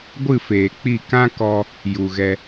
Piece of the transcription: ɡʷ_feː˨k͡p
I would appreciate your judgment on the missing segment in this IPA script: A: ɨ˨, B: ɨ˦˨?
B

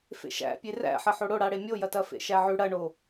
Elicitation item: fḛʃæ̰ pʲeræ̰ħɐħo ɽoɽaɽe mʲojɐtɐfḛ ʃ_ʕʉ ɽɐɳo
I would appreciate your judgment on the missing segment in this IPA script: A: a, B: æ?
B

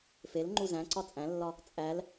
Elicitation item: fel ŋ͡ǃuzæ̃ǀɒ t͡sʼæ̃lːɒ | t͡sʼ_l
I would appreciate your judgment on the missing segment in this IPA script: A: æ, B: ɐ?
A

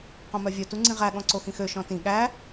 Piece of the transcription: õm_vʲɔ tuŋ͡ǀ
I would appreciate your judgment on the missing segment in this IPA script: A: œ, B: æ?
A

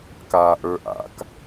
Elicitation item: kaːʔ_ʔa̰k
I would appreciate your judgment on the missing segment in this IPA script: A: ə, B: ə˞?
B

